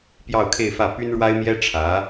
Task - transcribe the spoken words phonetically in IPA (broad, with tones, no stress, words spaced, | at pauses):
pjɑ˥˧ʊ̯kʰe˥˧ɪ̯fä˥˩ py˥nɻwa˥ɪ̯mjɛ˥ ʈ͡ʂʰä˧˥